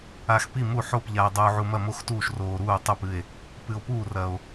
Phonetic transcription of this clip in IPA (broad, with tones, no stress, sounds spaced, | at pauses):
a˨ x p i˦˨ m u˦˨ ħ o˦˨ p ʎ a˨ e̯ dˤ uː˨ ʕ u˨ m ɐ˦˨ m o˦˨ x t uː˦˨ ʃ r oː˨ ɾ uː˦˨ tˤ u˦˨ p ɨ˦˨ e̯ | p ɨ˨ o̯ p uː˦˨ r ɐ˨ o̯